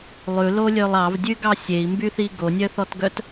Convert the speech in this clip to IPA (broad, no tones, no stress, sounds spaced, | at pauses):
lˠ ʉ l o lʲ ø lˠ ɑ v dʲ ʉ ɡ ɑ sʲ e i̯ m b y θ i ɡ o nʲ œ θ ɔ t ɡ œ t